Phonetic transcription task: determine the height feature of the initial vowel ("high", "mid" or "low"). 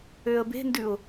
mid